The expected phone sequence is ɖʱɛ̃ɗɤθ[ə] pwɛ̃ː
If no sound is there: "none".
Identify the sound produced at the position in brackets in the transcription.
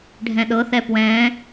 ɛ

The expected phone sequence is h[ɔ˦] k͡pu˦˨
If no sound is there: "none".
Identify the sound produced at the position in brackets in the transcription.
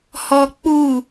ɔ˦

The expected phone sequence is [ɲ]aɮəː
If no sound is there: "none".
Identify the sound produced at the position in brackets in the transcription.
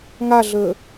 ŋ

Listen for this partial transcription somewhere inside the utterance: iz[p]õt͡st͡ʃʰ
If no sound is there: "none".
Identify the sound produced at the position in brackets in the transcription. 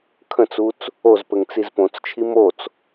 p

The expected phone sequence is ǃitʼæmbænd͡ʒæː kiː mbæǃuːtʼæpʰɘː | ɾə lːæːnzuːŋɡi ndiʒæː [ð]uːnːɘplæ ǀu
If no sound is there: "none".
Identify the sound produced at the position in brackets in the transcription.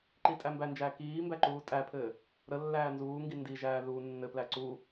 ð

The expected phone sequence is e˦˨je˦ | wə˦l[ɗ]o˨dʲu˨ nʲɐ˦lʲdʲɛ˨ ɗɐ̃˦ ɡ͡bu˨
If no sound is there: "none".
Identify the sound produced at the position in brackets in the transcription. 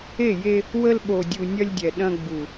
ɓ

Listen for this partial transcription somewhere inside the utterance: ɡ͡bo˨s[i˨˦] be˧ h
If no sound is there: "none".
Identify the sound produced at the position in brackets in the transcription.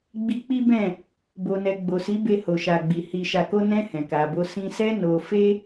i˨˦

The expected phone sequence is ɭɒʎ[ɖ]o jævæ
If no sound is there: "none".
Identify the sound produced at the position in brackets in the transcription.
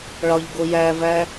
ɡ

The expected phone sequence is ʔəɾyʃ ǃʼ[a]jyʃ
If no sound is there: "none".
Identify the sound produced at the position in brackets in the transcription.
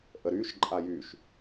a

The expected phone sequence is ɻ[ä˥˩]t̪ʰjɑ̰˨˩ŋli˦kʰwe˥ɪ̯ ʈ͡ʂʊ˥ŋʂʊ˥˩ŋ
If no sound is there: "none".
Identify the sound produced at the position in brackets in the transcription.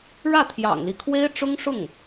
ä˥˩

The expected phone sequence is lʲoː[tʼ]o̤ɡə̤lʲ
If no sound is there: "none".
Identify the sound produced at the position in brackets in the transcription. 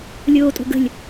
tʼ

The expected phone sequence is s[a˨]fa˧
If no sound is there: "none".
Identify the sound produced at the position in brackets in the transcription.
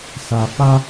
a˨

